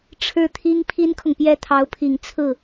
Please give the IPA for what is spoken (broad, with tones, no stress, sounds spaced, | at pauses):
ʈ͡ʂʰ ɻ̩˥˩ t̪ʰ i˥ ŋ pʰ i˥ n kʰ ʊ˨ ŋ p j ɛ˥˩ t̪ʰ ɑ˧˥ ʊ̯ pʰ i˨˩ ŋ t͡sʰ ɹ̩˥˩